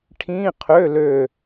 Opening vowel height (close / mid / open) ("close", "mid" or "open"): close